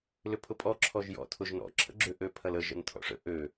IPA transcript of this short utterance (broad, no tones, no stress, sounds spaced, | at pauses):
l ʏ pʰ ʊ pʼ ɔ ǁʰ ɔ ʒ j ɔ̰ tʰ ʊ ʒ n ɔ̰ ǁʰ ə̰ ɡ͡ǁ ʏ ʔ ø pʰ ɐ l ə ʒ ə̰ n tʰ ɔ̰ ʂ ə̰ ʔ ø